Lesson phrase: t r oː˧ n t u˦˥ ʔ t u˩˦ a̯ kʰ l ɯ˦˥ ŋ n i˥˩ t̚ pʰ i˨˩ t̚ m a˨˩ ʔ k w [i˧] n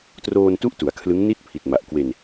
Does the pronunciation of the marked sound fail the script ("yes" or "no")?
yes